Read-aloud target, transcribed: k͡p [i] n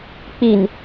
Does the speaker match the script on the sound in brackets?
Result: yes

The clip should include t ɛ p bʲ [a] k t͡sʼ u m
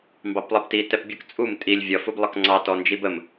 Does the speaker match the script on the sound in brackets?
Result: no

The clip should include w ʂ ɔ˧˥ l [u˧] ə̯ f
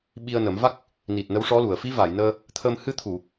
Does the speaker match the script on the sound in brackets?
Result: no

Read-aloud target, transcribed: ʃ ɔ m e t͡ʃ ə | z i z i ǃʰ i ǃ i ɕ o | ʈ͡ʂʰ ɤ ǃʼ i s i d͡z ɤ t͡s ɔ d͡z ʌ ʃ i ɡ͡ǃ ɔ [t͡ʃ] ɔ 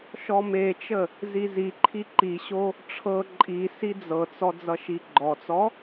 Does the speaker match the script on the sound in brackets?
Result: no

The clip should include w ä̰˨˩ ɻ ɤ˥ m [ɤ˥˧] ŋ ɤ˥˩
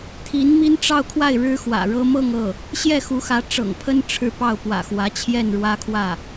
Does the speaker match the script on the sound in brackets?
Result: yes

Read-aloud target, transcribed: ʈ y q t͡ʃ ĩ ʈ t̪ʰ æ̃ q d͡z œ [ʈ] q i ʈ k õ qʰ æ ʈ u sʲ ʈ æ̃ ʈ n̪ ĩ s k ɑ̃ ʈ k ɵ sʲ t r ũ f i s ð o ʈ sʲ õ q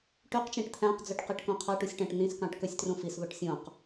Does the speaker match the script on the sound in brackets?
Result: yes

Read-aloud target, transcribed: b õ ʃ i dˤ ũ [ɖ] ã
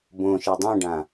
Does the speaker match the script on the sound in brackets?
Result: yes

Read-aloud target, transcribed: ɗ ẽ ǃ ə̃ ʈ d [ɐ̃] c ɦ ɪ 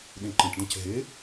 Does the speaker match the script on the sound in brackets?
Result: yes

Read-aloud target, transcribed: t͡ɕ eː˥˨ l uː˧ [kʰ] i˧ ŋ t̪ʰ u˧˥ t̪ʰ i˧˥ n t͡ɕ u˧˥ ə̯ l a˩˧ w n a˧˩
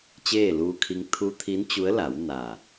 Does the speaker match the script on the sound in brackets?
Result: yes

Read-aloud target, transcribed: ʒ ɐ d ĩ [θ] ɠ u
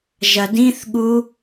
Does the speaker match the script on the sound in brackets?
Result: yes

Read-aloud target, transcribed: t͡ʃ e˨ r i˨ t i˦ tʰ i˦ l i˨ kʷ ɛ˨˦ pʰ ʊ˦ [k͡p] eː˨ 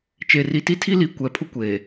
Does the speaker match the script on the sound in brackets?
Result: no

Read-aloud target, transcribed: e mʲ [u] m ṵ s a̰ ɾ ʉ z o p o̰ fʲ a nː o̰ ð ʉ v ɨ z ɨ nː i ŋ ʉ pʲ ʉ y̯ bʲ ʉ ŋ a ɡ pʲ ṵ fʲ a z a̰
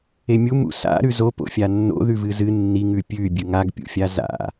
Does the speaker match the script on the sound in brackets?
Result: yes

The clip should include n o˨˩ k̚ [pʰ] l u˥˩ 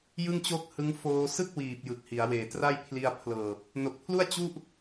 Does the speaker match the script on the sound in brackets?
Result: yes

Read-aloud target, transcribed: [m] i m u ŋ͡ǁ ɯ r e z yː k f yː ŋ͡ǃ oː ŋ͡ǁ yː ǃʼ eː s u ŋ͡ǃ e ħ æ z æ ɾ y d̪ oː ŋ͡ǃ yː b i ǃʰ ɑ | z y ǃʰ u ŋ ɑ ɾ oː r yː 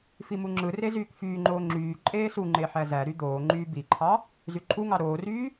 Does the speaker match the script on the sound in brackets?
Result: no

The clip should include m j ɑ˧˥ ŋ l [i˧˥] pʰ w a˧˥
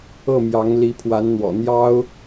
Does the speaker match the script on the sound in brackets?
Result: yes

